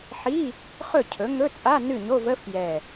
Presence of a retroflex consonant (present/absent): absent